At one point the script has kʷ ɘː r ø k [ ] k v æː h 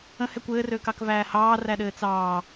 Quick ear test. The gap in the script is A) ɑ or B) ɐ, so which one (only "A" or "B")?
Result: A